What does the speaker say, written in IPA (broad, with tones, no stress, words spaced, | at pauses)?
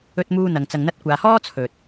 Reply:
ɵ˧t̚muː˧ n̪ɐ˨ŋ t͡sɐ˨ŋn̪ɐ˧t̚kʷaː˨hɔː˥ t͡sʰɵ˨t̚